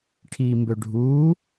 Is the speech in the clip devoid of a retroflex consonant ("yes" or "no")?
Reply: no